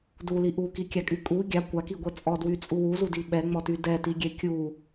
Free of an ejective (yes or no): no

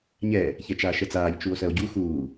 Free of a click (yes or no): yes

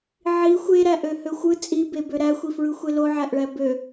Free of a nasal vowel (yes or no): yes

